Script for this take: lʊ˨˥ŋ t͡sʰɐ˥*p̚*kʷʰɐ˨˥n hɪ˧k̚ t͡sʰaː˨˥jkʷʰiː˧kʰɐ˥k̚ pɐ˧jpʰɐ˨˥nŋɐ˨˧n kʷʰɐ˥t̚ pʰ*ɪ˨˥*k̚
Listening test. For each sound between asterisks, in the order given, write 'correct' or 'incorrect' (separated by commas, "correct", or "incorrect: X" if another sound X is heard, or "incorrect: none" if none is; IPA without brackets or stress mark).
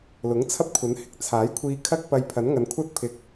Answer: correct, incorrect: ɪ˨